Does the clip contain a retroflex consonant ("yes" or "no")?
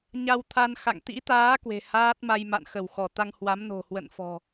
no